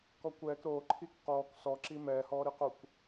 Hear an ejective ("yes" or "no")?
no